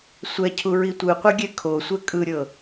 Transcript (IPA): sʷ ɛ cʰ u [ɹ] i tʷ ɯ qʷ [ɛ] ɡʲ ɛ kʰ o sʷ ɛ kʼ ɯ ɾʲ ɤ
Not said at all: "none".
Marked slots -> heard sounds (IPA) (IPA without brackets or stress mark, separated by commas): ɹ, ɛ